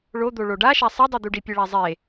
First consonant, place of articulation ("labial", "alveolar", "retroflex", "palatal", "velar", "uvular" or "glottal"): retroflex